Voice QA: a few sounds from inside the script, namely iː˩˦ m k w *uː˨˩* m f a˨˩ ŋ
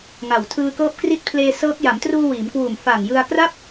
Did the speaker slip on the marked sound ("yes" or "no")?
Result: no